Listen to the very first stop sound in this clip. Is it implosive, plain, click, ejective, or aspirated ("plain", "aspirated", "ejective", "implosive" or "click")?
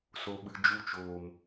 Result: implosive